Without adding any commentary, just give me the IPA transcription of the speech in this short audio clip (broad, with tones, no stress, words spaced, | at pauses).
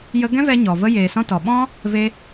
jə˦ ɡɛ̃˦vɛ˧ ɲɔ˨və˦ jeː˨sɔ̃˧ tɔ˨ ɓɔ̃˦ | ve˧